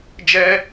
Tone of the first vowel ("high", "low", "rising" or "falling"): high